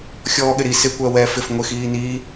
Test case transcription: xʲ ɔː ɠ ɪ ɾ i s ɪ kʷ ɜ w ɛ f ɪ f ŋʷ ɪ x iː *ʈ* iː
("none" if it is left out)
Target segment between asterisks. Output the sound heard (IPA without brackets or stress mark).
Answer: n